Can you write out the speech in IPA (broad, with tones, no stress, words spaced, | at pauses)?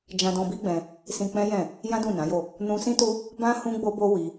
d͡ʒã˧dɔ̃˧bi˦ɡ͡bɛ̃˧ | sĩ˧k͡pɛ̃˦jɛ̃˦˨ | jã˦dũ˦˨nã˨˦jo˦˨ | nũ˧sĩ˦tu˦ | bã˦ hũ˦ɡ͡bo˦bo˦ wi˦